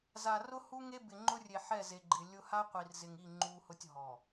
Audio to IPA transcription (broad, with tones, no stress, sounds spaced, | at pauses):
z a˨ r ʊ˦ h u˦ ŋ e˦ b ɪ˨ ŋ͡ǃ ʊ˦ rʲ e˨ ħ ɛ˦˨ z e˨ ɡ͡ǃ ɪ˨ lʲ ʊ˦ h a˦ qʷ i˨ r z ɪ˨ ŋ i˦˨ ŋ͡ǃ u˦ h ʊ˦ tʲ ɦ ɔ˨